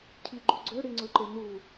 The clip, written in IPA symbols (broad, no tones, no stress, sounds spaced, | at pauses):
cʰ i ɡ͡ǃ u ɡ͡ǀ ø ɽ i ŋ͡ǀ ɵ ǃ e n u